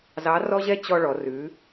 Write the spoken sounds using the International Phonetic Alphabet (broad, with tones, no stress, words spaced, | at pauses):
zɑ˧˥rɔ˥ʑɛ˥ t͡ɕɔ˧ɭɔ˩˧rʉ˩˧